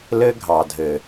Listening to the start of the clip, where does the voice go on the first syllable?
high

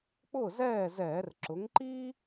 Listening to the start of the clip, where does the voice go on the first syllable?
falling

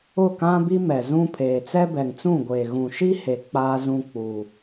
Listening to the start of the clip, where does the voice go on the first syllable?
falling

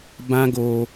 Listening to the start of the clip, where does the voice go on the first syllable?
high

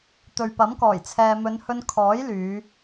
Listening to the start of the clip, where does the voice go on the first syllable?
low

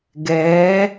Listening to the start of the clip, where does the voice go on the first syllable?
rising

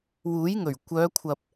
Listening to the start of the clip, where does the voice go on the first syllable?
rising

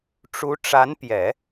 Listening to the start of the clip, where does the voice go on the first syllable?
rising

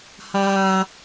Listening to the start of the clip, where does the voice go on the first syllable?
high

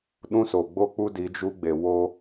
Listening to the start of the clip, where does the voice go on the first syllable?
high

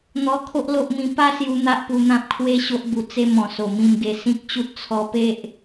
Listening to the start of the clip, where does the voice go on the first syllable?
high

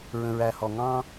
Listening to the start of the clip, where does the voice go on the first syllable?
low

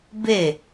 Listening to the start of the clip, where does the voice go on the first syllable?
falling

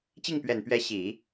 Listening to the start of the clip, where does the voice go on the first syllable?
falling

